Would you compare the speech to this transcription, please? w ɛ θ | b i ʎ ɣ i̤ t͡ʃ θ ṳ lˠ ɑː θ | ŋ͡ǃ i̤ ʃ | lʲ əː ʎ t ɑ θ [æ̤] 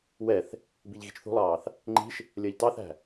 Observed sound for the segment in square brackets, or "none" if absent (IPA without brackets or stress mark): æ̤